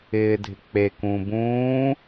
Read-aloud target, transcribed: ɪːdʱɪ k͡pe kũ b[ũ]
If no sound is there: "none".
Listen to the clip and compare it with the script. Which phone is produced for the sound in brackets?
ũː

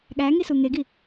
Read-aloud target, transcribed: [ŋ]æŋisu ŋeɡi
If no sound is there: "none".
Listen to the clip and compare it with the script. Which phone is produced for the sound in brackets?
ɠ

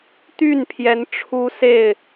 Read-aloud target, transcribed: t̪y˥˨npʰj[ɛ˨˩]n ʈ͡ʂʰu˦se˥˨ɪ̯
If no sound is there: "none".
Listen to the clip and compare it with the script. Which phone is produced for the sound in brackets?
ɛ˨˦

